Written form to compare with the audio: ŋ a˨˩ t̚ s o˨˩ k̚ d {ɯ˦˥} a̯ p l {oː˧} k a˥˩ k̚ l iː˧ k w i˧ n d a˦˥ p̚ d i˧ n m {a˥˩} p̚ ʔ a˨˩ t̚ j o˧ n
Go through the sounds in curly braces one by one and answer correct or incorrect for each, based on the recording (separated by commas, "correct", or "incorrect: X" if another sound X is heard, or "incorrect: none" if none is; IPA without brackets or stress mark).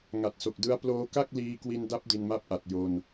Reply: correct, correct, correct